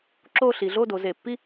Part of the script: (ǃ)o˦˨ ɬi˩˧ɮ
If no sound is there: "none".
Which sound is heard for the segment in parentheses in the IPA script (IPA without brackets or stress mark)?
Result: ǁ